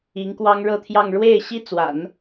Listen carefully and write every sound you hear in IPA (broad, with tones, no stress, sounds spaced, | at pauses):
i˧˥ ŋ k w ɑ˥ ŋ ɻ ɤ˥˧ t̪ʰ j ɑ˥˧ ŋ ɻ w e˥˩ ɪ̯ ɕ i˥ t͡s w a̰˨˩˦ n